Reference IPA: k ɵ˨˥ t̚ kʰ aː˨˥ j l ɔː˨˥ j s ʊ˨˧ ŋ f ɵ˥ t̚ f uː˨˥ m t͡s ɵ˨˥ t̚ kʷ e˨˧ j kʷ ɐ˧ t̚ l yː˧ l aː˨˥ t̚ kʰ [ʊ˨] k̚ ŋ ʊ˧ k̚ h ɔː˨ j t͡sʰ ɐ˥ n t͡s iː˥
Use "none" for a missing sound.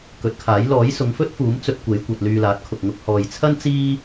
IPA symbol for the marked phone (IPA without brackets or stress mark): ʊ˨